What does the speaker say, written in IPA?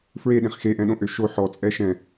f ɹ e ɗ ẽ χ x e ʔ ɛ̃ ɗ õ ʔ ø ʃ o ħ ɔ t͡sʼ ɛ ʃ ɛ̃

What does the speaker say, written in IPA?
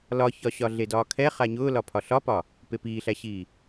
l ɒ ç ɒ ɕ ɒ ɮ e d ɒː kʰ ɛ χ a ɲ ʊː l ɒ pʰ ɒ ɬ ɒ p ɒ | p e p iː ɬ æ ɕ iː

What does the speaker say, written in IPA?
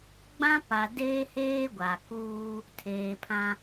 ɡ͡b ã˦ p a˨ d eː˦ h eː˦ ɡʷ a˨ k uː˦ | tʰ eː˨ pʰ ã˦

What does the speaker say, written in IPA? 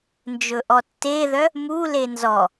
n d͡ʒ ɵ ʔ ɔ tː e ð œ | m u l e n z ɔ

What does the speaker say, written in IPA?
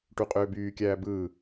ʈ u qʼ øː b yː kʲ æː b ɯː

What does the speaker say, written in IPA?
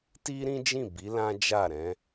t i˦ ɾ ĩ˦ d͡ʒ ĩ˦˨ b i˨˦ l ã˦ d͡ʒ a˦˨ ɾ ɛ̃˨˦

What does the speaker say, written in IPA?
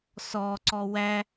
s ɔ ǀ ɔ w æ

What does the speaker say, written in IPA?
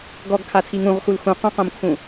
ɡ ɔ ɡ kʰ a tʰ i ŋ ũ ʁ x u l x ũ q ũ q õ m kʰ ũ

